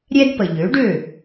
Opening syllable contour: high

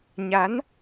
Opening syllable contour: rising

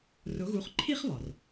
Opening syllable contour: rising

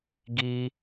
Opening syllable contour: high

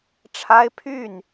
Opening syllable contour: high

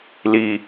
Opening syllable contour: low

